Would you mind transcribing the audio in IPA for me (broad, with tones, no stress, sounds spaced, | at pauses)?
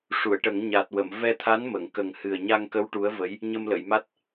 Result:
ʂ u˨˩˨ ə̯ ʈ ə˨˩˦ ŋ ɲ a˨˩ t̚ w ə˨˩˨ m v ɛ˧ t̪ʰ a˧˥ n m ə˨˩˨ ŋ k ə˨˩ ŋ h ɨ˨˩ ə̯ ɲ a˧ ŋ k ə˧˥ w ʈ u˧˥ ə̯ v ə˧˥ j | ɲ ə˧ m l ə˨˩˨ j m a˦˥ t̚